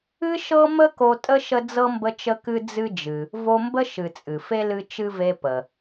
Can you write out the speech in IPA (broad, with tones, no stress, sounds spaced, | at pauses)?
ɨ˦ ʃ ɤ˦ m ə˦ k o˦ tʼ ə˥ ʃ ə˦ d͡z ɤ˥ m b ə˦ t͡ʃ ə˦ k ɨ˦ d͡z ɨ˦ d͡ʒ ɨ˨ | v o˦ m b ə˥ ʃ ɨ˨ t͡sʼ ɨ˩ f e˥ l ɨ˦ t͡ʃ ɨ˥ v e˦ p ə˩